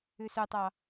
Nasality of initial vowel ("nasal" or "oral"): oral